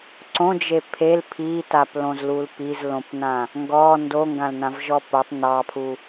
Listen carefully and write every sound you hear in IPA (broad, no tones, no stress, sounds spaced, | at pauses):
ǀ õ d͡ʒ e pʰ e l pʰ i t a p l õ z l u l p i z l õ p n ã | ŋ ɡ ɔ n d o ŋ ɡ ã l n ã v ʒ ɔ p o tˤ n ɑ pʰ u